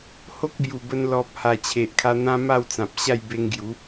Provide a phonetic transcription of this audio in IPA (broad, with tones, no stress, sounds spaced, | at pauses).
h o˦ k̚ b j u˨˩ b ə˧ n l ɔ˨ p̚ h a˨˩ t͡ɕʰ e˨ ʔ kʰ a˧ n̪ ã˦ m a˥˧ w t͡s ã˨ p̚ ɕ a˥˧ j b e˧ ŋ ɡ j u˨˦